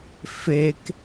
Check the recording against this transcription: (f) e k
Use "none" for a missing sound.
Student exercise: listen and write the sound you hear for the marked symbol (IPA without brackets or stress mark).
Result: f